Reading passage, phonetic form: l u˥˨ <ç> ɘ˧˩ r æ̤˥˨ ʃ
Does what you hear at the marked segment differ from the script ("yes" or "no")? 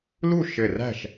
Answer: yes